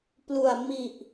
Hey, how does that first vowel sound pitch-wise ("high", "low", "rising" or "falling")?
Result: low